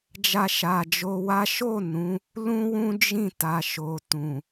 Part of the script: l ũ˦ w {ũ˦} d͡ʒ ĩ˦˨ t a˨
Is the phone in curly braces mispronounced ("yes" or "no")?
no